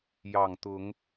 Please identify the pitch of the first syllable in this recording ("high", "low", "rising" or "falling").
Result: low